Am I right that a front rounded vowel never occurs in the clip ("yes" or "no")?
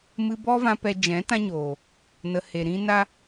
yes